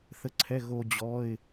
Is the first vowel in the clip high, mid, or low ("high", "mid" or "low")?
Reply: mid